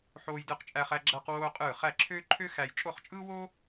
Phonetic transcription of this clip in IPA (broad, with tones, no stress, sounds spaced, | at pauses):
ħ oː˥ j d ɯ˥ q t͡ʃʼ æ˥ χ æ˥ ɡ͡ǁ æ˥ q w oː˥ qʼ ɯː˥˧ χ æ˥˧ ǁʰ øː˥ ǃʰ ø˥ x æ˥ j t͡ʃʼ o˥˧ χ t͡ʃʼ ɯː˥ w oː˥